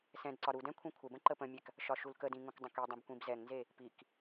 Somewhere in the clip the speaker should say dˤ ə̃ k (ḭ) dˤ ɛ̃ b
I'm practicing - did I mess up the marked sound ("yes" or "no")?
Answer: yes